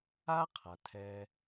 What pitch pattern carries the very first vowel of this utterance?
high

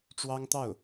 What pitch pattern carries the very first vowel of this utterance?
high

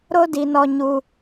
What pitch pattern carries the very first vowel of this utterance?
high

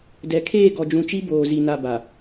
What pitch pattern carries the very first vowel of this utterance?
rising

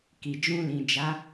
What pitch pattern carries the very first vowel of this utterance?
low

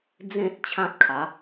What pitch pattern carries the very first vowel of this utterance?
high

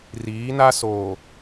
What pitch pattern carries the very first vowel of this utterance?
rising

